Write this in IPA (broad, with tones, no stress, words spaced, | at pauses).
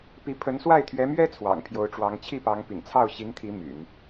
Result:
pi˧˥ pʰə˧˥nswa˥˩ɪ̯t̪ʰɥɛ˧˥mɥɛ˥ t͡sʰwɑ̰˨˩ŋpʰjo˧˥ʊ̯ʈ͡ʂwɑ˧˥ŋ t͡ɕʰi˥˩pɑ˧˥ŋ pḭ˨˩ŋt͡sʰɑ˥˩ʊ̯ ɕi˧˥ŋt̪ʰi˧˥ my̰˨˩˦n